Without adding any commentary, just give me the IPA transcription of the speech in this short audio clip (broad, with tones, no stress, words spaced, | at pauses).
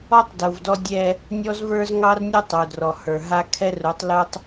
ɔ˦tˤdu˨vdɔ˦ dʲɛ˦ | nʲɔ˦zvə˞˦z ŋɑ˦rnʲu˦ tˤu˨drɔ˨ hə˞˨ɦa˦ kʰɛ˦ru˨˦tˤlu˦tˤ